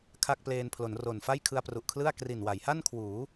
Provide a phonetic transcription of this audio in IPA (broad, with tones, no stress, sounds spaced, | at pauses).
kʰ a˥˩ k̚ p l eː˧ n pʰ l o˩˦ n r o˨˩ n f a˥˩ j kʰ ɯ˧ a̯ p r u˨˩ ʔ kʰ l ɯ˥˩ a̯ k r i˨˩ n w a˩˦ j h a˥˩ n kʰ w uː˩˦